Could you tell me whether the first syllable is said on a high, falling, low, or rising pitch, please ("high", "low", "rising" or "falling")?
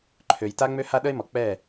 low